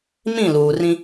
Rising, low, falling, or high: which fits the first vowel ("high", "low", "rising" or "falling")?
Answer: falling